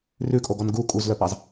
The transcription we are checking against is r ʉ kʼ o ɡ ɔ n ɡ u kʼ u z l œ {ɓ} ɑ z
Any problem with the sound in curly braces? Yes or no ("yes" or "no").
yes